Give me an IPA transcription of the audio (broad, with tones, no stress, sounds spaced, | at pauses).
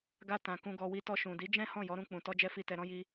ɡ a˧ t ã˨ k ũ˨ ɡ ɔ˨ w i˨ t ɔ˧ ʃ ũ˨ d i˨˦ d͡ʒ ɛ̃˦ h ɔ̃˦˨ j ɔ˨˦ ɾ ũ˧ k͡p ũ˨ t ɔ˧ d͡ʒ ɛ˧ f i˨ t ɛ˨ ɾ ɔ̃˧ j i˧